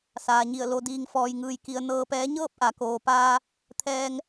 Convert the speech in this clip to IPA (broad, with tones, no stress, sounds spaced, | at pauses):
s aː˩ ɲ i˧˩ ə̯ l o˧ d iː˧ ŋ f ɔː˧ j ŋ ɯː˧ j k i˧ ə̯ n ɤː˧ p ɛː˧˥ ɲ ɤː˥˨ p̚ ʔ a˩˧ k oː˩ p aː˧ | t̪ʰ ɛː˧ ŋ